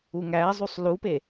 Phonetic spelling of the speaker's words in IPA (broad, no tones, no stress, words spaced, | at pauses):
uŋæːzˤusˤ lupe